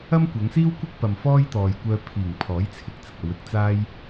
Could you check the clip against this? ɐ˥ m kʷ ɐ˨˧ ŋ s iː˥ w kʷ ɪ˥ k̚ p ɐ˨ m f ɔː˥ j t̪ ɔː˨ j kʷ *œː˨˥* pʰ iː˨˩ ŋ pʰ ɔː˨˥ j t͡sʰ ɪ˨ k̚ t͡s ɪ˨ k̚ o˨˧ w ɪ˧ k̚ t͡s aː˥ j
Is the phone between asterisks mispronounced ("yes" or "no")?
yes